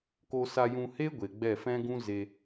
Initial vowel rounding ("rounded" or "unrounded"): rounded